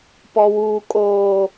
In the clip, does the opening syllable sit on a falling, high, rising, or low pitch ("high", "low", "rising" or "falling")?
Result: high